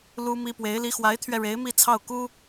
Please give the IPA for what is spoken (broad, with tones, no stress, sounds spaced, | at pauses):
l u˥ m i˥ p w e˧˥ ɪ̯ l i˧˥ x w a˧˥ ɪ̯ t̪ʰ ɥ ɛ˧ ɻ e˧˥ ɪ̯ m i˥˧ t͡sʰ ɑ˥˩ ʊ̯ k u˥